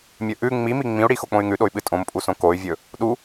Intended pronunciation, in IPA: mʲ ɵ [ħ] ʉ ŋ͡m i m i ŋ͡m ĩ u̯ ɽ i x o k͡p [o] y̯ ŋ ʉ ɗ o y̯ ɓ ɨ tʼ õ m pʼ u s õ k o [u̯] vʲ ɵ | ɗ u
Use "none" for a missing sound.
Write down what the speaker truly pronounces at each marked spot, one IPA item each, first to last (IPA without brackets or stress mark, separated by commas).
ʔ, õ, y̯